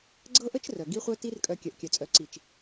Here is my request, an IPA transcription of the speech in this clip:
ɡ͡ǀ ɤ˦ ʔ ə˦ t͡ʃ r œ˨ ɡ i˦ χʷ œ˦ t i˦ r kʼ œ˧ kʲ œ˨ ʔ kʲ œ˨ t͡sʼ œ˨˦ ǀ i˨ t͡ʃ

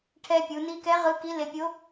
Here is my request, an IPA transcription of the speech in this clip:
ʈʰ ɛ˧ pʲ u˩˧ n i˧˥ k ɛ˧˥ ʁ ɯ˧˥ k i˧˥ l e˧ pʲ o˧˥

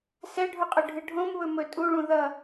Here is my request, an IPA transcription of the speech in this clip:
s ɛ ɖʱ u qʼ ɵ ɖʱ ɨ ɖʱ õ m β ɵ m ɵ tʼ u ɭ ũ ð ʌ

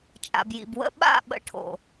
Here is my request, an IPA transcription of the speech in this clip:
t͡ʃʼ a̰˨ b j ḭ˨ b w ə̰˧ ɓ a̰˦˨ ɓ ə̰˧ ʈʰ o̰˨

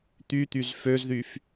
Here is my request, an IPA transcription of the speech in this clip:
t̪ y t̪ y z f ø z ð y f

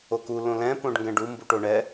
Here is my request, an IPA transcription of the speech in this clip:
o k u l õ l ɛ̃ p õ ɖ ŋ ɡ ɛ̃ ɖ u m b u ʈ o ɳ ɛ

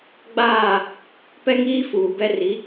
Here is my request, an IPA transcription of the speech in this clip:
ɡ͡b aː˦˨ | p ɛ˦ ŋ iː˦ f uː˨ b ɛ˦ r i˨˦

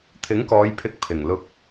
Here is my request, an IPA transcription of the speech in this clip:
t̪ʰ ɪ˨˥ ŋ k ɔː˨˧ j pʰ ɪ˨˥ k̚ pʰ ɪ˨˩ ŋ l ʊ˧ k̚

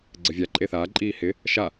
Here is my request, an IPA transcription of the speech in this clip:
ɡ͡ǀ ɘ vʲ a ǃʼ e θ aː ǃʼ iː h ɪ | ʃ a

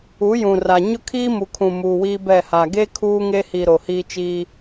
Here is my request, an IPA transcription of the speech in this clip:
u˨˦ j ũ˨ r a˨ ɲ ʊ˦ kʰ iː˦ m u˨ kʰ ũ˨ m uː˨ w iː˦ b ɛ˦˨ h aː˨ ɡ e˦ kʰ uː˦ ŋ e˦ h i˨ ɾ o˨ h iː˦ t͡ʃ i˦

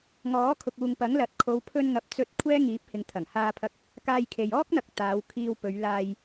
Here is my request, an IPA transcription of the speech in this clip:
ŋ ɔː˨˥ kʰ ʊ˨ k̚ uː˨ ŋ p ɐ˨˥ ŋ l ɐ˨˥ t̚ kʰ o˨˧ w pʰ ɵ˧ n ŋ ɐ˨ p̚ t͡s ɵ˧ t̚ kʷʰ ɛː˥ ŋ iː˨˥ p̚ h ɪ˨˧ ŋ t̪ʰ ɐ˨˩ ŋ h aː˧ pʰ ɐ˧ k̚ | k aː˧ j kʰ e˨ j ɔː˥ k̚ n̪ ɐ˨ k̚ t̪ aː˨˧ w kʰ iː˧ w p ɵ˨˧ ɥ l aː˧ j

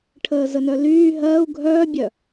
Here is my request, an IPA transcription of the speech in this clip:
ʈʰ əː z ə n œ l yː ɦ ɜː u̯ ɡʱ œː bʲ œ

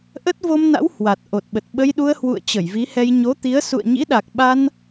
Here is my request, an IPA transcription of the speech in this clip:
ʔ ə˦˥ t̚ v o˧ m n a̰˧˥ w h w a˨˩ t̚ ʔ o˨˩ t̚ ɓ ə˨˩ t̚ ɓ ə˧ j ɗ u˧ ə̯ h w ṵ˧˨ ə̯ t͡ɕ ə˧˩ j v i˨˦ h ɛ˧ j ɲ o˨˦ t̪ i˨˦ ə̯ s ṵ˧˨ ə̯ ɲ ḭ˧˥ ɗ a˨˩ k̚ ɓ a˧ n

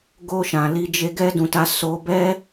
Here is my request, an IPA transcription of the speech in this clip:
ɡ o˧ ʃ ã˨ l i˧ d͡ʒ e˧ ɡ ɛ˦ d ũ˧ t a˦ s o˧ b ɛ˦

